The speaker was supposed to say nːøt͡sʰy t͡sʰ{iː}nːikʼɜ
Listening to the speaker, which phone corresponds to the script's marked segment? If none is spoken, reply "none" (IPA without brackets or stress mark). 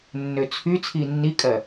iː